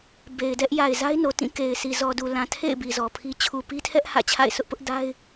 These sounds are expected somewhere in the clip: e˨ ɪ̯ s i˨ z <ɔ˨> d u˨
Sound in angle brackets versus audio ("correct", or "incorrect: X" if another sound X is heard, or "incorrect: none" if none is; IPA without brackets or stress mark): correct